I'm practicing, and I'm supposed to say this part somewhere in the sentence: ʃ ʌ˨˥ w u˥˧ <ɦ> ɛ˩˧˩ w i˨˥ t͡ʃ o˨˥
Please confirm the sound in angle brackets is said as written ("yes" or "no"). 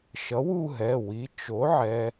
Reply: yes